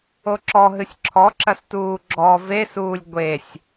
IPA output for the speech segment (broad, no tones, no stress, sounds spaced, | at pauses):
o ǁ ɔ ɦ ɨ sʲ ǁʰ ɔ ǁ ɐ s t uː ɡ͡ǁ ɔ v e s uː lʲ ɡʷ e sʲ